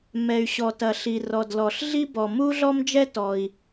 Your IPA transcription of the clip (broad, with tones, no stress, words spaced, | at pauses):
mɛ˩y̯ɕɔ˩tɐ˩ ɬi˩rɔ˩dlɔ˩ɬ ɮi˥bɔ˩ mu˥ɮɔ˥md͡ʒɛ˥tɔ˩i̯